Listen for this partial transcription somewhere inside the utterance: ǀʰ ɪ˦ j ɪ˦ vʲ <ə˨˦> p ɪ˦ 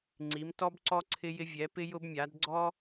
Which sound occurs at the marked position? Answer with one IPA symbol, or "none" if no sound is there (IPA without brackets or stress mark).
ɛ˨˦